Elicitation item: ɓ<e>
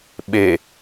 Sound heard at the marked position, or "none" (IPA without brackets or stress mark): e